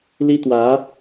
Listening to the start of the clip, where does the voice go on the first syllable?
high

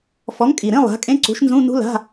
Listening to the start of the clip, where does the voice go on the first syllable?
rising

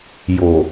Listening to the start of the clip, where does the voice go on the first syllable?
low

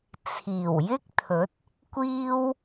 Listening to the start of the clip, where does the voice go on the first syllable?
low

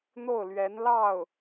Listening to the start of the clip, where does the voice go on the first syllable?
falling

